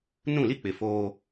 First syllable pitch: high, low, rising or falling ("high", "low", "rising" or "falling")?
falling